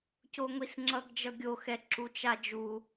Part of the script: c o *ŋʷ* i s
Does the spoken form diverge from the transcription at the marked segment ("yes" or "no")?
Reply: no